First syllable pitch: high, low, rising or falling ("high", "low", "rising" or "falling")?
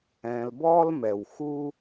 low